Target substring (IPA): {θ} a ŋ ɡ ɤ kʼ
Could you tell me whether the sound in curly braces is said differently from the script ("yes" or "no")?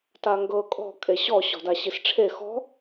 yes